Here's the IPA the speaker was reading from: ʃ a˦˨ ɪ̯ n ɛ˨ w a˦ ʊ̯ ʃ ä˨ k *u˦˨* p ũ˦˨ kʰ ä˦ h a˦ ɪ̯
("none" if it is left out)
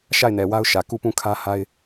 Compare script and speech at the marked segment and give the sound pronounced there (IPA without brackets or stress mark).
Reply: u˦˨